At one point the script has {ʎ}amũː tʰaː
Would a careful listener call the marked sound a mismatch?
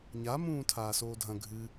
yes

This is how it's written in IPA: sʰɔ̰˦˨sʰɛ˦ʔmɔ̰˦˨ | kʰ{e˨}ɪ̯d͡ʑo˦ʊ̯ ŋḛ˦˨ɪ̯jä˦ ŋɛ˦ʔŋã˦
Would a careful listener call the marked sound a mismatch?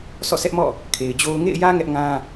no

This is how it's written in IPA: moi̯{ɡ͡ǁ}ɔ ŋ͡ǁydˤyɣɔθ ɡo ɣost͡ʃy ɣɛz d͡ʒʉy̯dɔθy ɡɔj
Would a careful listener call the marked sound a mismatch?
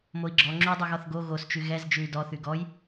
no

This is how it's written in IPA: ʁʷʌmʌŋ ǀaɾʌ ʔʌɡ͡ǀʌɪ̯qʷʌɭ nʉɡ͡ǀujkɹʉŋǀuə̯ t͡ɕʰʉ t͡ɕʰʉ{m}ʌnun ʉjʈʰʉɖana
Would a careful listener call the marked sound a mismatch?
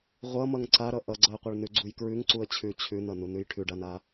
yes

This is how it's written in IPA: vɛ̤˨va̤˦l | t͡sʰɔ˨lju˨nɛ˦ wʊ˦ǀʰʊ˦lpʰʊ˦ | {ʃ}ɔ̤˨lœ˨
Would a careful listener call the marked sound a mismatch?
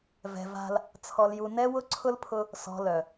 yes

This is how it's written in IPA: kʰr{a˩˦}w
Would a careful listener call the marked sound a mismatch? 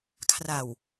yes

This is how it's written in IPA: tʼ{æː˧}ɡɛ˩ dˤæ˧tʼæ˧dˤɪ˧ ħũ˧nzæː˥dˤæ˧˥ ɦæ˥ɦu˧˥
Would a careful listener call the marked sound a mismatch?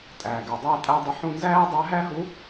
yes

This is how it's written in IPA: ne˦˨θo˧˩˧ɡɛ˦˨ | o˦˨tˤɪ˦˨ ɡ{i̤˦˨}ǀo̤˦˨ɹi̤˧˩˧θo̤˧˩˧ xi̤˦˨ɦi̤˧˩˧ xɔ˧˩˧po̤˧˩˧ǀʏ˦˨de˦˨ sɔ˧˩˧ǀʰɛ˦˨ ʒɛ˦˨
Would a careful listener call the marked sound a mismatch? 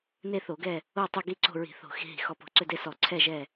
yes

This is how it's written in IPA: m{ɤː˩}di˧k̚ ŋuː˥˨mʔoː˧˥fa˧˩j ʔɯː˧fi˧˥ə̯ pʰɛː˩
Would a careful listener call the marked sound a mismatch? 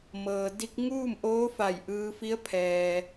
no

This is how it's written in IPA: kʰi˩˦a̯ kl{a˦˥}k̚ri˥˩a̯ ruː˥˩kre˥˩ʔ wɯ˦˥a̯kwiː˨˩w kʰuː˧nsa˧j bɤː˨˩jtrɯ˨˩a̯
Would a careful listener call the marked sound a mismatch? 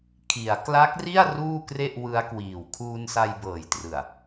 no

